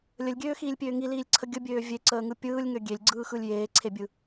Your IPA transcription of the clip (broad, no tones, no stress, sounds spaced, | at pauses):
lʲ ə lʲ ɡʲ øː x iː lʲ pʲ øː ŋ i l iː lʲ ǀʰ ə ɡʲ ə bʲ øː vʲ e ǀ əː ŋ ɯ pʲ ɯː lʲ ŋ ø ɡʲ e lʲ ɡ͡ǀ ɯː x ɯ lʲ j eː ǀʰ e bʲ ɯ